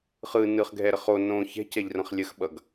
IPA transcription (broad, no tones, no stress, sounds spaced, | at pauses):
χ ɯ n ɯ χ ɡʱ ɛ ɾ ə χ o n õ ç ɛ̤ c ɛ ʎ r ə̃ χ lʲ ə x ɓ ʌ ɡ